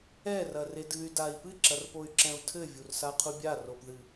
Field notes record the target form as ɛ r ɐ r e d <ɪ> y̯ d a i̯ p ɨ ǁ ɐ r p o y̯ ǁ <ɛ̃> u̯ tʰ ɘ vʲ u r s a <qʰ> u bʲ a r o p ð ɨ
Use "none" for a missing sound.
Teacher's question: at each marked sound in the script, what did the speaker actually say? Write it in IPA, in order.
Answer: ɨ, ɛ̃, qʰ

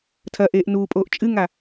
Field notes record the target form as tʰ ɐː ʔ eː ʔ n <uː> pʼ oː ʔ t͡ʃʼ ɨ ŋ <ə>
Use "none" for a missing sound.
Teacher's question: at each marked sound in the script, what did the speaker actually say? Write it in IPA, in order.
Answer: uː, a

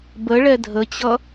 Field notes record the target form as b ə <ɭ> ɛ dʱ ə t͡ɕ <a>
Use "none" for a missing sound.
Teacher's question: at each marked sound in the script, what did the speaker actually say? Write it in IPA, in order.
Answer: ɭ, ʌ

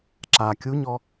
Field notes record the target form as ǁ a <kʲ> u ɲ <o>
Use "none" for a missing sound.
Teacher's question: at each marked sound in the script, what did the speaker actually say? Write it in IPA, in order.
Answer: kʲ, ɔ

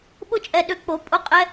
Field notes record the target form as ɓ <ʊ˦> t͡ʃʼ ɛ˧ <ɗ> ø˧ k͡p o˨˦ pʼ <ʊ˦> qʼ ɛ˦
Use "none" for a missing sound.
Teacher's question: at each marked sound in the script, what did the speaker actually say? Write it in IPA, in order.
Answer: ʊ˦, ɗ, ʊ˦

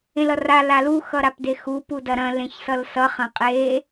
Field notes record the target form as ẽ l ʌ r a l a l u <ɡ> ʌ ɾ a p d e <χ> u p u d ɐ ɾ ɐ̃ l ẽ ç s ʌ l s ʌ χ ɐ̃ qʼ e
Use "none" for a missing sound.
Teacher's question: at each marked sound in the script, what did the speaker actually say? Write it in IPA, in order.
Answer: x, x

